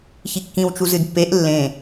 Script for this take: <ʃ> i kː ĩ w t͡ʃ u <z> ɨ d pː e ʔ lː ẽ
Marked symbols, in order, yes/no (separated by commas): no, yes